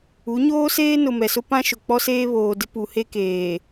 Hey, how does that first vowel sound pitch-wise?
rising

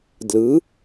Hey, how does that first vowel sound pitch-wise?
rising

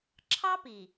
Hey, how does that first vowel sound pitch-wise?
high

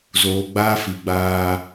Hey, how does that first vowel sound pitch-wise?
low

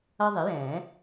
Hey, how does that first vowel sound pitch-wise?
high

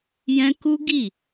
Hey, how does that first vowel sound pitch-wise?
high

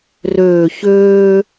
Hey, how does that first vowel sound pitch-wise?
low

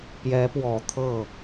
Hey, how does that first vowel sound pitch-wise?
rising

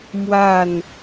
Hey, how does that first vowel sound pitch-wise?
falling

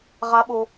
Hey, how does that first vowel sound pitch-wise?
rising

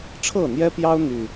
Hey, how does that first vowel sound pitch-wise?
falling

